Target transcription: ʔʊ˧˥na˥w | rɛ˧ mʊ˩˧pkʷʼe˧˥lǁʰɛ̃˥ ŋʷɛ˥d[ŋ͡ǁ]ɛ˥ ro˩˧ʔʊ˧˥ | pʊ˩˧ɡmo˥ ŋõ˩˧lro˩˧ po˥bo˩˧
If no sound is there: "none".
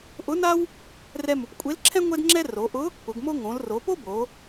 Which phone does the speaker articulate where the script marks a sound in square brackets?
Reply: ŋ͡ǁ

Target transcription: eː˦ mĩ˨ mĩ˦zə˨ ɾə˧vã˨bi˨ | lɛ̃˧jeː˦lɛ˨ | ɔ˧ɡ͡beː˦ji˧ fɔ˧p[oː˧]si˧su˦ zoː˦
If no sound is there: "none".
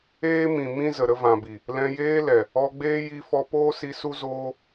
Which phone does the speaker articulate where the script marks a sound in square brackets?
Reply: oː˦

